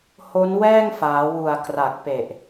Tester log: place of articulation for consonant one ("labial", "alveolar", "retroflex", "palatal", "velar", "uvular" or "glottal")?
glottal